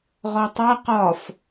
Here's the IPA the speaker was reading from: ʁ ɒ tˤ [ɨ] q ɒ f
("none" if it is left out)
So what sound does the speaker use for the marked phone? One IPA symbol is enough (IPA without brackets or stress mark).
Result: ɛ